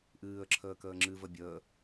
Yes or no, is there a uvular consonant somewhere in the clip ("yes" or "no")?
no